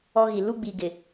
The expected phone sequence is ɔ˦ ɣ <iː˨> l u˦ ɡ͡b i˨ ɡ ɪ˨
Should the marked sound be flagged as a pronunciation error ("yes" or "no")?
yes